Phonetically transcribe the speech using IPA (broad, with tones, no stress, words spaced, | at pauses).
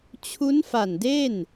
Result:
t͡ɕʰu˦˥nfa˨˩nde˥˩n